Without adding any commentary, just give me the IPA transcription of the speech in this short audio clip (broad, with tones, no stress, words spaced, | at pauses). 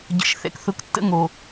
ɟə̰˨ʃ θɛ̰˨kθʊ˨ktːə̰˦ ŋo˨